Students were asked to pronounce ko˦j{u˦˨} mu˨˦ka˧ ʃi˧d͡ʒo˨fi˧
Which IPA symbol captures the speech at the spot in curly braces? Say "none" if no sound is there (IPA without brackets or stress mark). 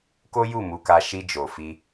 u˦˨